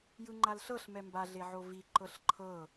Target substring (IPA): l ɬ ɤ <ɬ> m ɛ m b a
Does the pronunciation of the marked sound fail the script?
no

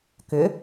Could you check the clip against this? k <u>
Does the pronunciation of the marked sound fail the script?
yes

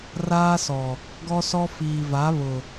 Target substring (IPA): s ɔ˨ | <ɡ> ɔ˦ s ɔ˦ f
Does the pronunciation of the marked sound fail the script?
no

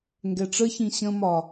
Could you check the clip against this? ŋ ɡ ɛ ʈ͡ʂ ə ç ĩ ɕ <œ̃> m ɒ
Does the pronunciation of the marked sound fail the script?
yes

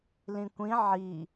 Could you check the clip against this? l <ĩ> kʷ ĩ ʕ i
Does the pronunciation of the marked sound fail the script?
no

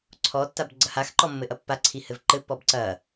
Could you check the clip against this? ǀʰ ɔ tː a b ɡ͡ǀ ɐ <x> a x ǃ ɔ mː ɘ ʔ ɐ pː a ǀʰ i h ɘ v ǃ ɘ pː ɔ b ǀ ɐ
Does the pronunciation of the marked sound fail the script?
yes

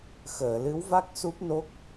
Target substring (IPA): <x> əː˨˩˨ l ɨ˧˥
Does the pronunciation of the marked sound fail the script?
no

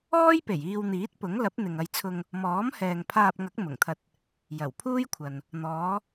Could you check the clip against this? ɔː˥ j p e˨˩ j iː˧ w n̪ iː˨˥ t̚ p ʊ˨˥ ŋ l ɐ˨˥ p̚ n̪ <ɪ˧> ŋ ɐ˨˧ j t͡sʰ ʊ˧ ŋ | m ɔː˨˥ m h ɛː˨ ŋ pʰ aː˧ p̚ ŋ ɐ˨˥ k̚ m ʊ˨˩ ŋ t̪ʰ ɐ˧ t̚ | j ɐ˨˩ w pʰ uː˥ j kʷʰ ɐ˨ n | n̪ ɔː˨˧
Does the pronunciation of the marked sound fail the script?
yes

